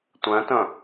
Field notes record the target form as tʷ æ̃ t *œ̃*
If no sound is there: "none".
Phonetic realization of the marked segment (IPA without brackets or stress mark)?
œ̃